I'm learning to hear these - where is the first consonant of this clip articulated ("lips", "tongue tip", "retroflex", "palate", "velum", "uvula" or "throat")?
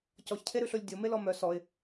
palate